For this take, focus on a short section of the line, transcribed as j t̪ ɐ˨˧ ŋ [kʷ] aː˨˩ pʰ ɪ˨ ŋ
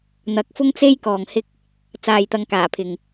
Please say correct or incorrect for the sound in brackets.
incorrect: k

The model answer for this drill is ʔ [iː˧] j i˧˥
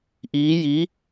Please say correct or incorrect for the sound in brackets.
incorrect: iː˧˥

